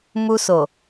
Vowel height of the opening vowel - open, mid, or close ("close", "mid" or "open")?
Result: close